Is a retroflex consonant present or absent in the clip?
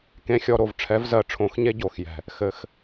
present